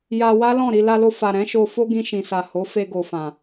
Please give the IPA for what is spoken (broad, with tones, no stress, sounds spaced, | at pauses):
j a˧ w a˦ l ɔ̃˦˨ ɾ i˧ l a˧ l o˧ f a˨ ɾ ɛ̃˨˦ ʃ o˧ f o˦ ɡ ĩ˧ ʃ ĩ˨ s a˨ h o˨˦ f e˧ ɡ o˨ f ã˨